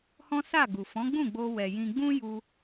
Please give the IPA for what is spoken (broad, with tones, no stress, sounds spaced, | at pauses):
h ɔ̃˦ s a˦˨ ɡ u˨ f ɔ̃˨˦ ɡ͡b ũ˦˨ ɡ͡b o˧ w ɛ˨ j ĩ˧ ɡ͡b ũ˦ j u˧